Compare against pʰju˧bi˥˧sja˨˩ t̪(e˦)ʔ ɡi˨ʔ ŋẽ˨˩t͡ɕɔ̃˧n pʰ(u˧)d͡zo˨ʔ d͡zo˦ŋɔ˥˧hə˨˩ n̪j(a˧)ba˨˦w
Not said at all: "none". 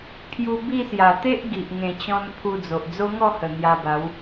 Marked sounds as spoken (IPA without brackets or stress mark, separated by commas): e˦, u˧, a˧